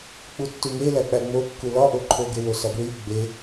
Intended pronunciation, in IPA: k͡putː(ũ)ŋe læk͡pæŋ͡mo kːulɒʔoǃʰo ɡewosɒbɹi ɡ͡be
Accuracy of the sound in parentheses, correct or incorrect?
incorrect